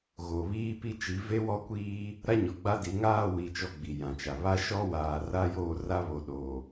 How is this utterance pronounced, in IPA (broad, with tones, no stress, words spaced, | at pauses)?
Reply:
ɣo˨βiː˦pi˦t͡ʃi˨˦ ve˦wɔ˦kʷiː˦ | ɾa˦ɲɔ˨ɡ͡ba˦di˨˦ ŋaː˦˨wi˨t͡ʃɔ˨ ɡ͡bi˨jã˨t͡ʃa˨ βa˦ʃɔ˦waː˨ ra˦joː˦˨ra˦ βo˨ɗo˨